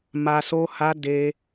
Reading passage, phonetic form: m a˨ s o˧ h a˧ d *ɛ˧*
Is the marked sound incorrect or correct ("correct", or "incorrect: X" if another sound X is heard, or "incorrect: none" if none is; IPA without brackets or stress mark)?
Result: incorrect: e˧